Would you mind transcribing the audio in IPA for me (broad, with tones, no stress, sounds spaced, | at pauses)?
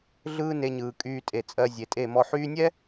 ɮ ɯː˦ n e˧ ɲ ɯː˨ kʼ yː˧ tʼ e˨ t͡sʼ ɜ˧ zʲ e˨ tʼ e˦˨ m ɔ˨ ħ yː˧ nʲ ɛ˦